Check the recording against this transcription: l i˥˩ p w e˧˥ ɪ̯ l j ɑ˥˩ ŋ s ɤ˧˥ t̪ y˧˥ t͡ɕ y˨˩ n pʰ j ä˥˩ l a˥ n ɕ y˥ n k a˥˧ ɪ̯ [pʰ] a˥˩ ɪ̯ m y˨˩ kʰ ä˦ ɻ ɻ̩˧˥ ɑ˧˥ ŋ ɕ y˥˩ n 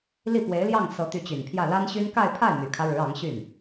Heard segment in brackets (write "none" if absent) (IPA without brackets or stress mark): pʰ